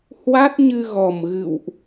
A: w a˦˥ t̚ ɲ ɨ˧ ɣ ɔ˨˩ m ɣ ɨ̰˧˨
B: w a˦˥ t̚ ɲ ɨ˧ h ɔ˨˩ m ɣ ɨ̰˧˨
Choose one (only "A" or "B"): A